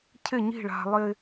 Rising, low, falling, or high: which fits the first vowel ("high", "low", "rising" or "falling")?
falling